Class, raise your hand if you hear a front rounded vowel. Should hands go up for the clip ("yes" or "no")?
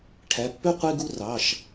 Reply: yes